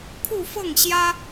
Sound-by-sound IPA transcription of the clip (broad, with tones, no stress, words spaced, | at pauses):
kʰu˥˧fɤ˥˩ŋɕjä˥